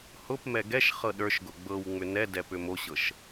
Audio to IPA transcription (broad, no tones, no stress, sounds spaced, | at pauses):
h ʊ p m ɛ ɡ ɛ ʃ χ ɤ ɗ ə˞ ʃ ɡ ʊ ɡ͡b ɤ w ŋ͡m ʏ n ɛ d ɛ p ʏ m o ɕ ɤ ʃ